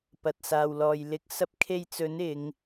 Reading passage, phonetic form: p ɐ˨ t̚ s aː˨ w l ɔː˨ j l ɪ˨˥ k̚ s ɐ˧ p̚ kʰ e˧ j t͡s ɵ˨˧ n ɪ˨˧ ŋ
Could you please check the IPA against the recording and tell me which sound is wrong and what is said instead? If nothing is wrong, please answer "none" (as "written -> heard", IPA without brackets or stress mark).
ɵ˨˧ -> ɵ˨˥